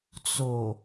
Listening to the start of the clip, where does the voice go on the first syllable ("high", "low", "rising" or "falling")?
low